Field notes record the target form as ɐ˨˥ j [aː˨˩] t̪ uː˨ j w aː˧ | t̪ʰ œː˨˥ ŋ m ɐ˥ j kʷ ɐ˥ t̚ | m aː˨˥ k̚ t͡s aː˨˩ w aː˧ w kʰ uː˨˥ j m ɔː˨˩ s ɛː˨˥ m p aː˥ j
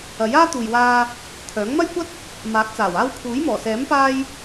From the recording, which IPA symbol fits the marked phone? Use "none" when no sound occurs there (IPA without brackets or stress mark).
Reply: aː˥